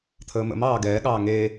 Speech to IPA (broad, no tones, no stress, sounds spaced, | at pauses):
t̪ʰ əː m ə̰ m ɑː ɡ ɛː ɠ ɑː ŋ e